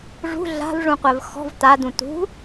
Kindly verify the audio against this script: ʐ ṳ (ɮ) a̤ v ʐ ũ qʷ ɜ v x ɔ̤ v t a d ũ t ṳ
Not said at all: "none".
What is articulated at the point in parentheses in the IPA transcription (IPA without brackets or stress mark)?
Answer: ɮ